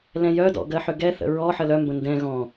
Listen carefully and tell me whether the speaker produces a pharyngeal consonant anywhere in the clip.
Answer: yes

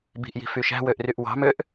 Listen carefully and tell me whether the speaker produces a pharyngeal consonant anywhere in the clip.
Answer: no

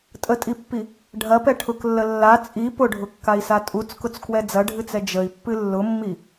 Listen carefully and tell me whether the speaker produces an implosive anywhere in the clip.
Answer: no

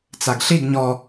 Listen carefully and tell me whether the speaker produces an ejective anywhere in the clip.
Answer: no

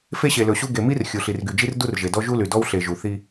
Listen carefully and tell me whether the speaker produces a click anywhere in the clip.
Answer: no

